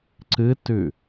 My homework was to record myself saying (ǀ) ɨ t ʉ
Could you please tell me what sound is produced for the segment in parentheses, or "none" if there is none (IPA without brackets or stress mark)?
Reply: ǀ